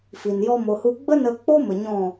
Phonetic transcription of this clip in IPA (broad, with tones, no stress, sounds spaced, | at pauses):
f i˨ n j ɔ˦ m o˧ h u˦ ɡ͡b ə˦ n ə˧ k͡p o˦ m ə˨ ɲ ɔ̃˦˨